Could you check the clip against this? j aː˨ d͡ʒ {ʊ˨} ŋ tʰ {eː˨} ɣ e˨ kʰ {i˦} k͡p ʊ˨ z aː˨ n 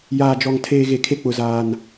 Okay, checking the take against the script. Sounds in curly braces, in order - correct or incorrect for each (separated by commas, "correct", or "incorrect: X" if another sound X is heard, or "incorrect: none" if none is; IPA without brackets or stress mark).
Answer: incorrect: ɔ˨, correct, incorrect: e˦